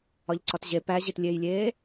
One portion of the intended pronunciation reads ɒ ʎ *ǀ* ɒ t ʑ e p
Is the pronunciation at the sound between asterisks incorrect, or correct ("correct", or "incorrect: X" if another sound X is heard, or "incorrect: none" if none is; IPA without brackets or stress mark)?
correct